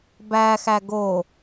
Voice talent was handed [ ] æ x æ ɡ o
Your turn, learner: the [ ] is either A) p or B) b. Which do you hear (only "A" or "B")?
B